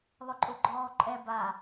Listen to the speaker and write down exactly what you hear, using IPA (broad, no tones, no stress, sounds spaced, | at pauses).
lˠ ʊ ǃʼ ʊ ɡ͡ǃ ɔː ǃʼ ɛ b a